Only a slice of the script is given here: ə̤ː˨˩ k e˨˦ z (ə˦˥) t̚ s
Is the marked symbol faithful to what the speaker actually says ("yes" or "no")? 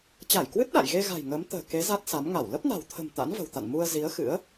no